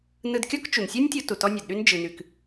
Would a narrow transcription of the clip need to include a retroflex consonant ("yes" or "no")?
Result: no